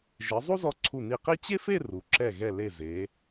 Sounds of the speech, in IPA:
ʒ e˩˧ zˤ u˥ z ɔ˧ ǀʰ u˧˩ n i˧˩ q i˥ t͡ɕ e˥ f e˥˧ r u˩˧ ǁ ɛ˧˩ ɣ ɛ˧˩ l e˧˩ z e˩˧

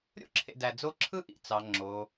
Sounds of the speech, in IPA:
ɾʲ o̰˥ ǁʰ ḛ˨ d æ˨ d͡z o˦ ǁʰ ɯ˥ ʔ ḭ˨ t͡s ɑ˩ ŋ͡ǁ o˩

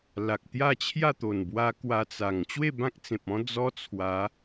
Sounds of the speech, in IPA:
l a˨ k̚ t̪ j a˥˧ t͡ɕʰ j a˥˧ t̪ o˨˩ n b w a˧ k w a˧ t͡s a˨˩ ŋ t͡ɕ w e˥˧ b ã˦ k̚ t͡s ẽ˨ p̚ ɔ̃˦ d͡z ɔ˦ t͡sʰ w a˨˦

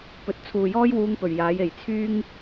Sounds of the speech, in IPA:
p ɵ˨˥ t̚ t͡sʰ uː˨ j ɔː˥ j w uː˧ ŋ p ɵ˨˩ ɥ j aː˨˥ j e˨˩ j t͡sʰ yː˥ ŋ

